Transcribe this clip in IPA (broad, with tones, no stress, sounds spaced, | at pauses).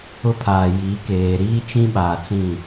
ʊ˦ pʰ aː˨ j i˨˦ k eː˨ ɾ iː˦ t͡ʃ ĩ˦ ɓ aː˨ t͡s ĩ˦˨